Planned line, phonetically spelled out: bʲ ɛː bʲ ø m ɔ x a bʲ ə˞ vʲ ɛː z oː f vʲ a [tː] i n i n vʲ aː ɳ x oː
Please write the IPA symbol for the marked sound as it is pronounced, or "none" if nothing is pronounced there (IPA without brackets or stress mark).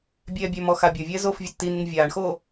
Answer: tː